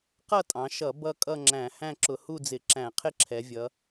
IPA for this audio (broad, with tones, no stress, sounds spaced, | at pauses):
q ʌ˥˧ tʼ ɑ̃˩˧ ʃ ʌ˧˩˧ b ʌ˥˧ kʼ ʌ˥˧ ŋ͡ǁ æ̃˧˩˧ h æ̃˥˧ ǁ ʊ˧˩˧ h u˥˧ d͡z ɪ˧˩˧ ǁ æ̃˧˩˧ qʰ ɪ˥˧ ǁʰ ɛ˩˧ vʲ ʌ˩˧